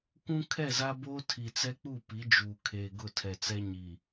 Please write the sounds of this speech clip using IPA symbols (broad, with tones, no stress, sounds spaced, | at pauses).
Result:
kʷ ũ˦ kʰ ɛ˦˨ z a˦ b oː˦ tʰ i˨ t͡s ɛ˦ k͡p u˦˨ p i˨˦ d͡ʒ uː˨ kʰ eː˨ ɡ ʊ˦˨ tʰ ɛ˨ t͡s ɛ˦ ɲ i˨